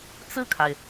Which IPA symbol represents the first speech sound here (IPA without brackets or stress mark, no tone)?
t͡s